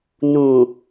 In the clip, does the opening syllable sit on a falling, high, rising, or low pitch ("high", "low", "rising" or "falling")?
low